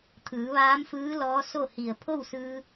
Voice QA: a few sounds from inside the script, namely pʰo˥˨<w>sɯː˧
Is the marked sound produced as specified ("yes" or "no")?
yes